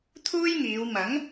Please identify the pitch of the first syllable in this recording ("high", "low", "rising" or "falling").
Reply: high